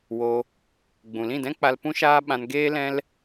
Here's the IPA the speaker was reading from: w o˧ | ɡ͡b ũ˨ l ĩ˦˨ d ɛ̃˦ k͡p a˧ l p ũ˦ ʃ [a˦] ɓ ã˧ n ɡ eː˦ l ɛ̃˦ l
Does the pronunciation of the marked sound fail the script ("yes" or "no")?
yes